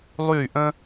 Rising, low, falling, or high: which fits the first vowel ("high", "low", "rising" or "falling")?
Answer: falling